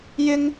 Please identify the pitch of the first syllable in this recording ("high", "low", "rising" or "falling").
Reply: high